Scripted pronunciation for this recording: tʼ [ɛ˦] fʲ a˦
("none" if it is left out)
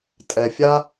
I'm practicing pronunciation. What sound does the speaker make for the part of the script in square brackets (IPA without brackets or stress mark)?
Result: ɛ˨